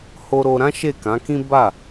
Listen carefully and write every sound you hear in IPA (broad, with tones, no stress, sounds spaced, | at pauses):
h o˧ ɾ o˧ ɾ ã˦ ʃ e˦˨ k ã˨˦ k ĩ˦ b a˦˨